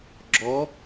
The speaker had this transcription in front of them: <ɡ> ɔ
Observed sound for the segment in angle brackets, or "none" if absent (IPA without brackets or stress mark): ɡ͡ǁ